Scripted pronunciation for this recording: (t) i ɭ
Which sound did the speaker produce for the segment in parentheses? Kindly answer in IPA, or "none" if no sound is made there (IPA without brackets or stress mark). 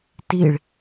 t